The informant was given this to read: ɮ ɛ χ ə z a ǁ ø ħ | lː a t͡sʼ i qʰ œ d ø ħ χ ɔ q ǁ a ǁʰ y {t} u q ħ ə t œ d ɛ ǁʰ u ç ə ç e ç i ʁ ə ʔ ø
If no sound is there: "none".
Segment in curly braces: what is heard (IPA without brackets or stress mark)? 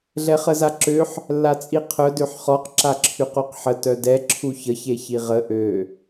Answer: q